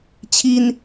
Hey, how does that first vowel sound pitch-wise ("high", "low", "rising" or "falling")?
high